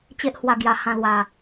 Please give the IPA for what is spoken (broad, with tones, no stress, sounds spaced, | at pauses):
t͡ɕ e˦ ʔ h w a˧ ɡ j a˧ h ã˥˧ l w a˨˩